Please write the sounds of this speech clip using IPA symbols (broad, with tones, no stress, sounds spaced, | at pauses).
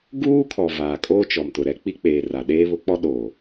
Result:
ɡ uː˦ kʰ ɔ˨ v aː˨ kʼ oː˦ t͡ʃ ɔ˨ m t ʊ˨ ɾ ɛ˦ k͡p i˦ k͡p eː˨ r a˨ ɗ eː˦ β ʊ˦ k͡p ɔ˦ ɗ oː˨